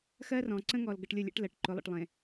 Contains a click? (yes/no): yes